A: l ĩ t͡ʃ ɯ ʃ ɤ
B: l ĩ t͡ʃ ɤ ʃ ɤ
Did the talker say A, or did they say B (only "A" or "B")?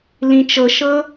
B